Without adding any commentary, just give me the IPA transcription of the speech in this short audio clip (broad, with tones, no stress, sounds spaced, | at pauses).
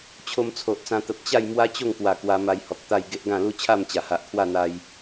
t͡ɕʰ o˧ m t͡sʰ o˨ ʔ t͡s ã˧ t̪ ə˨ p̚ t͡ɕ a˥˧ j m w a˦ t͡ɕ o˥˧ ŋ k w a˨˩ k w a˧ m a˧ j h ɔ˨ k̚ t̪ a˥˧ j ɡ e˦ ʔ ɡ ã˥˧ l u˦ t͡ɕʰ a˥˧ m t͡ɕ a˨˩ h a˨ ʔ kʰ w a˥˧ n̪ a˧ j